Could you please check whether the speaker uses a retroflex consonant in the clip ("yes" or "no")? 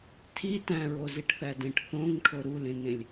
yes